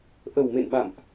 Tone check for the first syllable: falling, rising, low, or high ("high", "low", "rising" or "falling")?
low